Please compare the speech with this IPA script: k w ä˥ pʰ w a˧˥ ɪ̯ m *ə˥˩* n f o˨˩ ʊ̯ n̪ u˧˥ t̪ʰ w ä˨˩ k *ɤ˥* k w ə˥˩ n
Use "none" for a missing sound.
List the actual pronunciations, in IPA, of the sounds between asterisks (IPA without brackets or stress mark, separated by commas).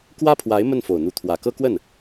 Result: ə˥˩, ɤ˥